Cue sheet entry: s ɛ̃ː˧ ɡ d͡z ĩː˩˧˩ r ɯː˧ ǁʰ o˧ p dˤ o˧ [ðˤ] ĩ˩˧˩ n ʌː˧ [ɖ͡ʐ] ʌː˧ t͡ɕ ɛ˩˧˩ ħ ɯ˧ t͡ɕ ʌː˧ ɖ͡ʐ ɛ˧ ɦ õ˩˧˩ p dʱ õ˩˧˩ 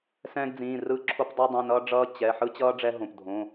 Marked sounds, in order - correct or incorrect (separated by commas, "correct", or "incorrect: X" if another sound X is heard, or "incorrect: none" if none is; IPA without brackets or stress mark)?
incorrect: dˤ, correct